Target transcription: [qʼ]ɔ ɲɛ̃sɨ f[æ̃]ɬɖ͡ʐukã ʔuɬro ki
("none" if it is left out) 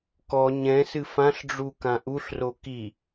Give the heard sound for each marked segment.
k, ã

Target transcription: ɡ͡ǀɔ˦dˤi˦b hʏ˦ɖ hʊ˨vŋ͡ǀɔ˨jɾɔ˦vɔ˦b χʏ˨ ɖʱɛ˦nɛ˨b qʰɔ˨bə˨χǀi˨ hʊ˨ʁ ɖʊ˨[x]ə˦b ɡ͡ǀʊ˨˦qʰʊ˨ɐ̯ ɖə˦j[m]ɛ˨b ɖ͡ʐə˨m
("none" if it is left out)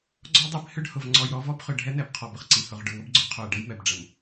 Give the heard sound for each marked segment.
ŋ, m

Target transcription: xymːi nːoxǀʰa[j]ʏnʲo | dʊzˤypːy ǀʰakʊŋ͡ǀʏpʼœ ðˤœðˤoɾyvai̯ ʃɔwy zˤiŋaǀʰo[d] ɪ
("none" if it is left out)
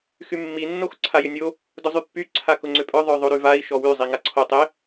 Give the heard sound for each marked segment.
j, tˤ

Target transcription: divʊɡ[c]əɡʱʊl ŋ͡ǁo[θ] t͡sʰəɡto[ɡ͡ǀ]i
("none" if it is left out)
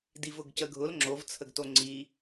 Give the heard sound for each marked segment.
c, v, ŋ͡ǀ

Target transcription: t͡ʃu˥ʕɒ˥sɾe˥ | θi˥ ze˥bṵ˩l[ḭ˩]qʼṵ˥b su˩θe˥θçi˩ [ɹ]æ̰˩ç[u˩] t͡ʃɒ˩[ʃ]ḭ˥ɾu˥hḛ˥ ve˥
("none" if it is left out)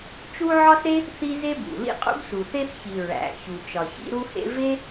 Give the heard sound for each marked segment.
ḭ˥, ɹ, u˩, ç

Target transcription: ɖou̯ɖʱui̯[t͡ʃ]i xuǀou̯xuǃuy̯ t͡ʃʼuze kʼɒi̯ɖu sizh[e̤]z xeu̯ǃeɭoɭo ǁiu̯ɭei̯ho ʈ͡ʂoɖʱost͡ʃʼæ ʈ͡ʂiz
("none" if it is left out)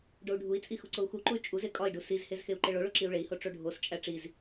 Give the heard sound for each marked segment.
t͡sʼ, e

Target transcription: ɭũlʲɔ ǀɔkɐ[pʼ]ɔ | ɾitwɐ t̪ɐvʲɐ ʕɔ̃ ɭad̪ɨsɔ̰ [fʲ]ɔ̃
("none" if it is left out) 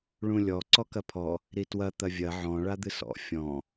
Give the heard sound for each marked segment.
pʰ, fʲ

